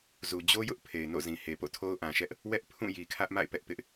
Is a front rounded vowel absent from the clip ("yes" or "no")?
yes